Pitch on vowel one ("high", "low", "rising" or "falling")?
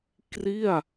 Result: falling